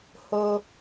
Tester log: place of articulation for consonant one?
glottal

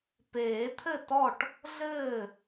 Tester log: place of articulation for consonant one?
labial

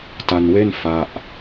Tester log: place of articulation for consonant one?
alveolar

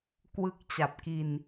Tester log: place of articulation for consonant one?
velar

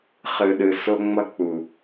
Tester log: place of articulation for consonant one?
uvular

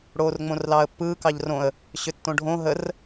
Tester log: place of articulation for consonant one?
retroflex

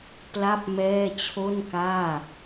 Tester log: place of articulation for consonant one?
labial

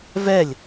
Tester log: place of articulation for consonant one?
labial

